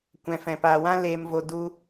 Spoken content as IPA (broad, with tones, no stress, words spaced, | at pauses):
kʷɛ̃˨fɛ̃˨paː˨ wã˦leː˨mvo˨ du˦